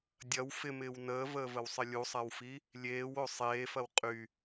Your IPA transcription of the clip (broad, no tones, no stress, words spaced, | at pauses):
dʲɐw fɪmɪːw nəːvəːvəwsˤɪ lʲusˤawfi | lʲeːwo sˤeːfɐw qʼy